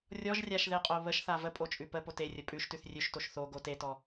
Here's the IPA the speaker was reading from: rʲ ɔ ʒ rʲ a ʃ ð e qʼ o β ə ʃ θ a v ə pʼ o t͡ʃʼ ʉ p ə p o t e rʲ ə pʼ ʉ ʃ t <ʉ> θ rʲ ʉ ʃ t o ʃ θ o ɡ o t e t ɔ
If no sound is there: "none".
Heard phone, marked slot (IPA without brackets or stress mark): ʉ